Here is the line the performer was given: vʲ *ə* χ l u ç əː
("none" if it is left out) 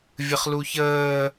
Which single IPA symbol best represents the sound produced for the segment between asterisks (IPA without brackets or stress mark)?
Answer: ə